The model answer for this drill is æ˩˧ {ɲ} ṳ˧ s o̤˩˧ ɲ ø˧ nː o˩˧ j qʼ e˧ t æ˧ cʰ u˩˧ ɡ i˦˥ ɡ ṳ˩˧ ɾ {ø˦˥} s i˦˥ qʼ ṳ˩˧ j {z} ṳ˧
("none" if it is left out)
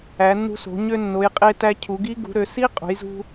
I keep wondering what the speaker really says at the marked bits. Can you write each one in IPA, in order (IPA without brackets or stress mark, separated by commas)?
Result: nː, ø˩˧, z